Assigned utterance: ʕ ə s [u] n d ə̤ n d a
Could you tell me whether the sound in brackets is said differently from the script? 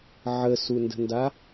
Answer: no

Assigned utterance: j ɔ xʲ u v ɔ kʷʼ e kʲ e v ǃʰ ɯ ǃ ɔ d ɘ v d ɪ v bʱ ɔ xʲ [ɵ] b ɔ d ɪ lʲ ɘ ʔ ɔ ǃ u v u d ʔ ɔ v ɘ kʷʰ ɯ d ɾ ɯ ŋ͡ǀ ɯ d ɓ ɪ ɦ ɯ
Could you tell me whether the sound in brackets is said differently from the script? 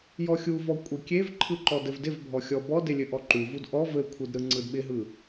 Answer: yes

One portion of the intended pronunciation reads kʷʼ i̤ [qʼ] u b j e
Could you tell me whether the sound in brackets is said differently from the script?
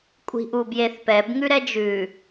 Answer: yes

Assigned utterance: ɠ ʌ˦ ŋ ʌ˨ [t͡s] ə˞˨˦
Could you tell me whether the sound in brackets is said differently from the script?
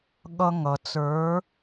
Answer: no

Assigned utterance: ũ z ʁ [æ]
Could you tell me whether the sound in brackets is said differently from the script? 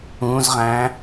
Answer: yes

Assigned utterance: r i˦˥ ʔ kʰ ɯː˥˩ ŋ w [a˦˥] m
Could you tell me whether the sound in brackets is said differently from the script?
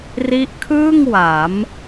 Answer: yes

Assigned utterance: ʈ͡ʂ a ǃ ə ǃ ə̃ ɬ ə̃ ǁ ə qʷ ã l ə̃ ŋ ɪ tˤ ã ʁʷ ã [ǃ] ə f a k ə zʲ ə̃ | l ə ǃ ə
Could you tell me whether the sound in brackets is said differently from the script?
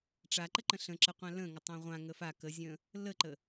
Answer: yes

